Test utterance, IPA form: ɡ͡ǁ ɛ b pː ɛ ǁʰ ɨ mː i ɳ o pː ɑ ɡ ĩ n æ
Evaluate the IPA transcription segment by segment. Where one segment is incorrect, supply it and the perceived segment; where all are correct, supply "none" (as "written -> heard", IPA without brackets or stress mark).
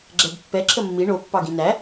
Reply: ɨ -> ə